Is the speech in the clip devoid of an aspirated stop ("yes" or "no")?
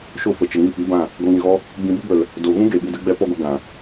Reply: yes